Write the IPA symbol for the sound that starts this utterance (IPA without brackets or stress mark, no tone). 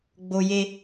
ɡ͡b